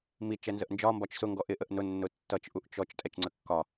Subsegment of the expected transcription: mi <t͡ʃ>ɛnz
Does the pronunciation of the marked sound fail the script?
no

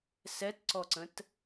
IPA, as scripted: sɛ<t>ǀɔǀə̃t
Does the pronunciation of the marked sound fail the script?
no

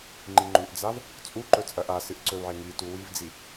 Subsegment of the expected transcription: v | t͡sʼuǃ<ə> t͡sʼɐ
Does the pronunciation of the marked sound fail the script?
yes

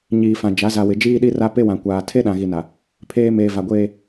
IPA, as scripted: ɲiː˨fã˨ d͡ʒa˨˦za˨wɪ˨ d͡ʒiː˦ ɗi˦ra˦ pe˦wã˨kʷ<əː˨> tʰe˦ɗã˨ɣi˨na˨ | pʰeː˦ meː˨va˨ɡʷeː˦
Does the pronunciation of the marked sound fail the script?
yes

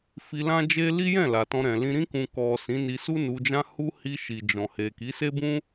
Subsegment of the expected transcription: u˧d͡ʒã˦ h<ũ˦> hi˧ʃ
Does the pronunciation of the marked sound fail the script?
yes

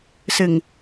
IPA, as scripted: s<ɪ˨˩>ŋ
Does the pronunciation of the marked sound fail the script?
no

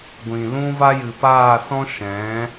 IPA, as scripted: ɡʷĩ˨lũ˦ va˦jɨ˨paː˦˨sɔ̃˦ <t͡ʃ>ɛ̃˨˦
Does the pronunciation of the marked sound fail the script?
yes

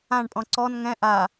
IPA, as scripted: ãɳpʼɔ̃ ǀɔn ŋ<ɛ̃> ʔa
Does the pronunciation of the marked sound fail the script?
no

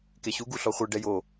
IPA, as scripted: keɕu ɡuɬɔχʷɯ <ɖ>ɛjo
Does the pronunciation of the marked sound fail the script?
no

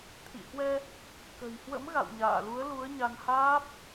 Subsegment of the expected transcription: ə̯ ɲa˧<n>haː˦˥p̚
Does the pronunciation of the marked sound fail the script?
no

